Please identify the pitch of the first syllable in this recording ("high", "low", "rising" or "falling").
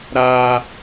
high